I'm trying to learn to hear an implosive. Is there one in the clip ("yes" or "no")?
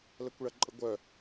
no